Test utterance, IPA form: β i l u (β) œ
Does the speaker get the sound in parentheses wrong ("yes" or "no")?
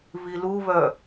no